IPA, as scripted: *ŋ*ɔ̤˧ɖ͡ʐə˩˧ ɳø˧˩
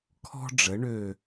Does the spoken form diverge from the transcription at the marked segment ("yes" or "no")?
yes